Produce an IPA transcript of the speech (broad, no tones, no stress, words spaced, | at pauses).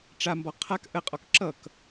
ʈ͡ʂambɔ qʰak ʔəqʼɔk ǁʌk